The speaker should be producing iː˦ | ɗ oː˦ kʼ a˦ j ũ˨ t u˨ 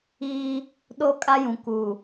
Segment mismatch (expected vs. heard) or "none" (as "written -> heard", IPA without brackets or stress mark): t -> k